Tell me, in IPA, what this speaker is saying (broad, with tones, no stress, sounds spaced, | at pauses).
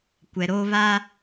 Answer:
kʷ ɛ˨ ɾ oː˦ β a˦